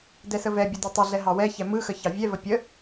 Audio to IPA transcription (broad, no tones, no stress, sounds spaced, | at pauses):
d ɛ s ə v ɛ bʲ ə d i tˤ ə ɮ ɛ ɦ ɑ w ɛ ç ɛ m ɯ x ə ç ɑ vʲ ɛ v ə pʲ ə